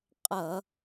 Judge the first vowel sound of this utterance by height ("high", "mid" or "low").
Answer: mid